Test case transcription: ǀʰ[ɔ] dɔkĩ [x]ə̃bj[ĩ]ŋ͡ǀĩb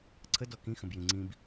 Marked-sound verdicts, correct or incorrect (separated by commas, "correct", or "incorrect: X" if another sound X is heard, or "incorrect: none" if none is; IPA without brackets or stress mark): incorrect: ə, correct, correct